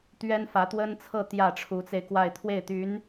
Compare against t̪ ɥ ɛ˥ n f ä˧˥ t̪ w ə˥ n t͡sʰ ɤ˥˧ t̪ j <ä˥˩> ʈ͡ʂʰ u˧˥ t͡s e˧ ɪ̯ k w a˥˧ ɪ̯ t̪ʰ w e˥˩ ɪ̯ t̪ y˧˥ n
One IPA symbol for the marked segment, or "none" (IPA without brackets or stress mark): ä˥˩